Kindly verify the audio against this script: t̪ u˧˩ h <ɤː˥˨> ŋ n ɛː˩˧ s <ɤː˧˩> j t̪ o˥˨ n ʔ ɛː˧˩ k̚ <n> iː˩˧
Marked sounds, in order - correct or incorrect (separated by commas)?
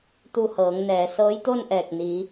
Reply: incorrect, incorrect, correct